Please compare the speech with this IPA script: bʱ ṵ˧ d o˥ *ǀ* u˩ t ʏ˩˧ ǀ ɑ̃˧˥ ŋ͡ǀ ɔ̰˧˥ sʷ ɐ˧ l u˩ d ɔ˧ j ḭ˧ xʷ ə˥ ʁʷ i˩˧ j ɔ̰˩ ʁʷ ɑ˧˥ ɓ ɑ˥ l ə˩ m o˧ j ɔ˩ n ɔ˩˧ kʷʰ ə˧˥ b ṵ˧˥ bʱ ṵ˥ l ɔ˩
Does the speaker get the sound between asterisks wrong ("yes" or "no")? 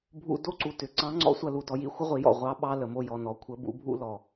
no